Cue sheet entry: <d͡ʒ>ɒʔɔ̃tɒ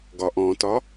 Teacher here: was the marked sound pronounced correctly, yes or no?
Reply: no